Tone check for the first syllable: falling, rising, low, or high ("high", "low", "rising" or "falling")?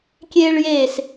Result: high